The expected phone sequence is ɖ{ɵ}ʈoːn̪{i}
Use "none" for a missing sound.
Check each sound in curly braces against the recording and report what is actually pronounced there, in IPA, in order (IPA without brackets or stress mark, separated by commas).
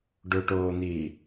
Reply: ɵ, iː